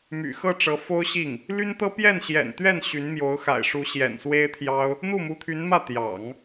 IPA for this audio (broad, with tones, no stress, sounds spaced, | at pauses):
m y̰˨˩ x ɤ˥˩ ʈ͡ʂ ɤ˧˥ f o˥ ʊ̯ ɕ i˥˩ ŋ | l y˥ n t̪ ɤ˥ p j ɛ˥˩ n ɕ j ɛ̰˨˩ n t̪ ɥ ɛ˥˩ n ɕ y˧˥ n m j o˧˥ ʊ̯ x a̰˨˩ ɪ̯ ʂ u˧˥ ɕ j ɛ̰˨˩ n s w e˥ ɪ̯ t̪ʰ j ɑ˥ ʊ̯ | n̪ u˥˩ m u˧˥ t̪ʰ y˧˥ n m ä˥˩ t̪ j ɑ̰˨˩˦ ŋ